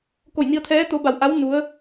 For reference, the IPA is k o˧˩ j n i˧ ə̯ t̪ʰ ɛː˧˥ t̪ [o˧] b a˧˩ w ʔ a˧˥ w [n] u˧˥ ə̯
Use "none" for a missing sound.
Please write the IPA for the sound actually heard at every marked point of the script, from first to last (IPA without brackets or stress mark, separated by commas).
o˧, n